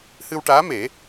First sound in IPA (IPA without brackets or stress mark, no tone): h